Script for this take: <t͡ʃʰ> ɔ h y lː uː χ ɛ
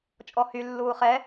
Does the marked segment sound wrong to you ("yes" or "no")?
yes